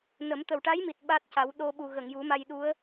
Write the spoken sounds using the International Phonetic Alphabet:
nə˨˩˦m t̪ə˨˩wʈa˧˥jmi˨˩t̚ ɓa˦˥t̚ca˨˩˦w ɗo˧ɓu˨˩ɣə˨˩˨ŋ ju˨˩˦ma˧jɗu˧˥ə̯

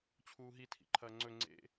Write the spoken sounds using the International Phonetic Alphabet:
t͡ɕʰuːɦi tʰḭǃʰɐːŋ͡ǀɵ ŋ͡ǀḛ

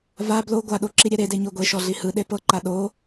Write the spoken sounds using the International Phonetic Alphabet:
va blo ɡʷaɗo ǁiɾʲɛɾede ɲoɡʷeʃɔ ɮihɯɗe pɤǃa ɗo

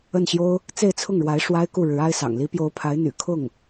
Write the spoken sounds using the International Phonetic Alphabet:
ə˥˩nɕjo˥ʊ̯ | t͡se˥˧ɪ̯t͡sʰʊ˥˩ŋɻwa˧˥ɪ̯ ʂwa˥ɪ̯ku˥˩ ɻɻ̩˧˥a˥ɪ̯sɑ̰˨˩ŋ li˧˥pjo˧˥ʊ̯pʰa˧˥ɪ̯ n̪y̰˨˩ kʰʊ˥˩ŋ

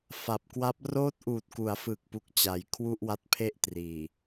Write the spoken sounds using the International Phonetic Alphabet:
fa˨˩p̚kwa˦˥p̚ roː˦˥t̚ʔuː˨˩t̚ ku˩˦a̯fɯː˨˩k̚pu˨˩k̚ t͡ɕa˩˦jkʰwu˥˩ʔwa˦˥t̚pʰe˥˩ʔ triː˨˩

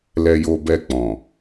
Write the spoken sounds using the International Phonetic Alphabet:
lɛ˧jo˧ bɛ˧k͡pɔ̃˨

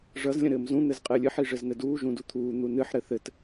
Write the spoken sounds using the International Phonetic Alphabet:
ʐʌz lʲə̃ɾɘːmzũ n̪ɘzqʼɘːlʲɨħ iʐɘznɘduː ʒũdut̪ʰuː n̪unɨħ ɾɘθɘt

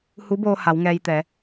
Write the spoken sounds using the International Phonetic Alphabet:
hu˧˥boː˧ ha˩˧w ŋɛː˧jt̪ɛː˩˧

